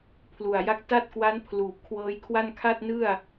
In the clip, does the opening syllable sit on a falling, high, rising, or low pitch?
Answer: low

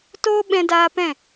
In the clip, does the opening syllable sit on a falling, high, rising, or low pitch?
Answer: high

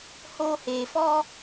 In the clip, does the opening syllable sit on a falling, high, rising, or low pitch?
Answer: high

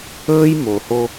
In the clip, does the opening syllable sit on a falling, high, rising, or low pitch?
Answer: high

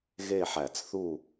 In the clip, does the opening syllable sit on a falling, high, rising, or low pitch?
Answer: falling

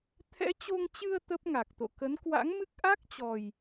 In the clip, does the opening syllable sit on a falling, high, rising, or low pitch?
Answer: rising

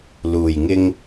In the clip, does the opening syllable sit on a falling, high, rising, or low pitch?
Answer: low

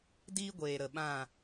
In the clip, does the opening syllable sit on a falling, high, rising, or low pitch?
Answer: high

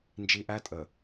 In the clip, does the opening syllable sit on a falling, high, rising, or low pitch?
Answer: high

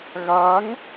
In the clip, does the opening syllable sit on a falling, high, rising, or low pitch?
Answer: rising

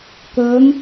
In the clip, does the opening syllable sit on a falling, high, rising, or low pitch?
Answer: rising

